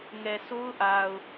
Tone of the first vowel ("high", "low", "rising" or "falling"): low